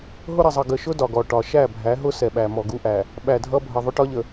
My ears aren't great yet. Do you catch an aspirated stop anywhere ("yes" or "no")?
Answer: no